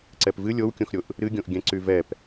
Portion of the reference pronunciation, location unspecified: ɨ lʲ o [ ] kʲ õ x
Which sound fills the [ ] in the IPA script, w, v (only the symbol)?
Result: w